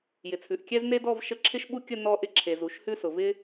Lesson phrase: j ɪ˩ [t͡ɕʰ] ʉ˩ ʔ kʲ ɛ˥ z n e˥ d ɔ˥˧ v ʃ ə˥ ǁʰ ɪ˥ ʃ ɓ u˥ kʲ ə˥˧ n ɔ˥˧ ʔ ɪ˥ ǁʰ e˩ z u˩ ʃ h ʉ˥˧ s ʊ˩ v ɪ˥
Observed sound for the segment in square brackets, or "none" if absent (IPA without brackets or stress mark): t͡sʰ